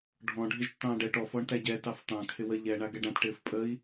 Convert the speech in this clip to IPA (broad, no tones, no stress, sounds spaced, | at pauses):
ɖʱ ɔ̃ ɖʱ ɪ ʒ tː ɑ̃ː ɖ ɛ ʈ ɔ f ɔ ɳ t æ ɟ ɛ t ɑ f t ɑ̃ kʰ ɪ w ə ʎ ɛ ɳ a ɡ ɛ ɖ ã t ʈ ɪː f pʼ ə i̯